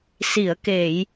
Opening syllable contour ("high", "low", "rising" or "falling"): low